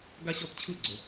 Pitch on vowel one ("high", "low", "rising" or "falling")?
high